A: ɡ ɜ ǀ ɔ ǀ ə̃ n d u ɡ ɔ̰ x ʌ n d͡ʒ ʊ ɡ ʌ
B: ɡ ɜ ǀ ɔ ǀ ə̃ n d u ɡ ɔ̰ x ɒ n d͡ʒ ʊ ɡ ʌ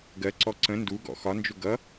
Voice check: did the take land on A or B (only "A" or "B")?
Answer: B